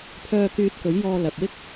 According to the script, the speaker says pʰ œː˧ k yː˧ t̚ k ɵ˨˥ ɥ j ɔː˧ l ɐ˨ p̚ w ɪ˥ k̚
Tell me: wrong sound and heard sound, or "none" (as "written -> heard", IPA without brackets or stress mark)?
none